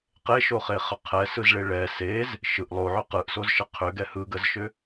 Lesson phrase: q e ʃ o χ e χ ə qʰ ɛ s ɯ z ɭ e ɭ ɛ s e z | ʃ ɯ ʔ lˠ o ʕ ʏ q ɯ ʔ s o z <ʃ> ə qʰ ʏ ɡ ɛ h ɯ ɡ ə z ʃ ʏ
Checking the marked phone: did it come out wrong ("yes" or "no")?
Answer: no